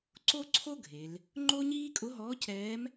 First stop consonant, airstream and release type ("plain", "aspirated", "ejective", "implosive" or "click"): click